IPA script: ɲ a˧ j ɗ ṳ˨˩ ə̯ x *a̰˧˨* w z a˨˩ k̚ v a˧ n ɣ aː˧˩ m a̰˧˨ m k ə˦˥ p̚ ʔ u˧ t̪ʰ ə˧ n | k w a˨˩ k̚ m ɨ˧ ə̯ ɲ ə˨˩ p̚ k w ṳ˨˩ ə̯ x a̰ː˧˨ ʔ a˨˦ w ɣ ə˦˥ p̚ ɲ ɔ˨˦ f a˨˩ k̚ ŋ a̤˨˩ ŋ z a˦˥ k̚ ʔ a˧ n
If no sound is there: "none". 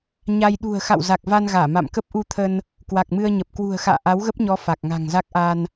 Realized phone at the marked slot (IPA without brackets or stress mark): a̰˧˨